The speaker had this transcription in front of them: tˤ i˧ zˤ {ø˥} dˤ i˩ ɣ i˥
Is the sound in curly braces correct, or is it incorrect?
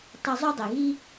incorrect